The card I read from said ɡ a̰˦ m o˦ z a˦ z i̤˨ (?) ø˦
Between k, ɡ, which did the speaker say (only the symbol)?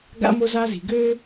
ɡ